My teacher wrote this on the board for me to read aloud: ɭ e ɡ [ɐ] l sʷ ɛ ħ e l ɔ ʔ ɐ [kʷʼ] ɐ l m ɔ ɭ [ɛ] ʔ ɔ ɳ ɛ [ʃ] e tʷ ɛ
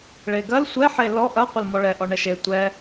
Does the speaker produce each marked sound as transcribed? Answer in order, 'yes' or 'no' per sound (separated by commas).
yes, no, yes, yes